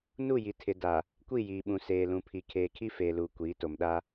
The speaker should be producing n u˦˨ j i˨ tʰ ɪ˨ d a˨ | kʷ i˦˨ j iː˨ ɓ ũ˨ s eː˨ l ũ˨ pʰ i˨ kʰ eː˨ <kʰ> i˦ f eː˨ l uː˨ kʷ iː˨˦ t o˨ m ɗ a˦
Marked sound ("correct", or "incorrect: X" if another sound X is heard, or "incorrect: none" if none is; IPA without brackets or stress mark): correct